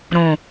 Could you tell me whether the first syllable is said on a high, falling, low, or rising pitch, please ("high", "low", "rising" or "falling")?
low